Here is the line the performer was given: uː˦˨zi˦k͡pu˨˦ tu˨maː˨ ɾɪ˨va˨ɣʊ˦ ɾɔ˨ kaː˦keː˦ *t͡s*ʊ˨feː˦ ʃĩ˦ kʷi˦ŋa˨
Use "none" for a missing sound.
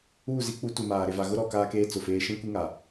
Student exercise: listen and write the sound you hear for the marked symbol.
t͡s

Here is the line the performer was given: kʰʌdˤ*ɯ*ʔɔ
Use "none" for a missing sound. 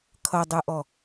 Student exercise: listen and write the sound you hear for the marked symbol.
ɯ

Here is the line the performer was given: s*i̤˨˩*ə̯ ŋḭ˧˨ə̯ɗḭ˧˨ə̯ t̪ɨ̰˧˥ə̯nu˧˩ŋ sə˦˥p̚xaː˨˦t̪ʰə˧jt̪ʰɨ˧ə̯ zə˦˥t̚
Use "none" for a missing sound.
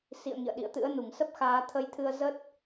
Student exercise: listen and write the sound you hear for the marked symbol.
ḭ˧˨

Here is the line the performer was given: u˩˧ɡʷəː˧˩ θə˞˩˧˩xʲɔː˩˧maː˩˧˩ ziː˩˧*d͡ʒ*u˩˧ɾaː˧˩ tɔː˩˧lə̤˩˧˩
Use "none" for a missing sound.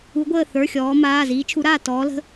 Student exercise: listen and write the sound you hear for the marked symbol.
t͡ʃʰ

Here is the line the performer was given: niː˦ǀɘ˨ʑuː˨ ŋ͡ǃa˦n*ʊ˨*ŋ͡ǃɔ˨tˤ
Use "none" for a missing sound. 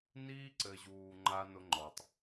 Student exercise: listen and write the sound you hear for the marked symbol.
ʊ˦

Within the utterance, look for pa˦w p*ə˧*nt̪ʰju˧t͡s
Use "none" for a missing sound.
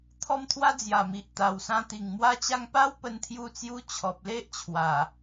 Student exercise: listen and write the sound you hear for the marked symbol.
ə˧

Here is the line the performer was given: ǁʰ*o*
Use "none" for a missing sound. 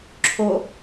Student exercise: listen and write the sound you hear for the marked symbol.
o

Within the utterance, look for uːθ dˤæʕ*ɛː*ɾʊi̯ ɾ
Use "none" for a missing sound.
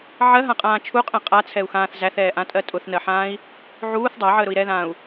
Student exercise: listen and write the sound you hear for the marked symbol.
əː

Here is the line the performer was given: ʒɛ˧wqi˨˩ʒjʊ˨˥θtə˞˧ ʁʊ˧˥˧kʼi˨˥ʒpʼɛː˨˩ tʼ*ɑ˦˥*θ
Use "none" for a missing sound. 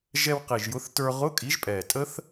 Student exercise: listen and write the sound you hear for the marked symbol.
ə˦˥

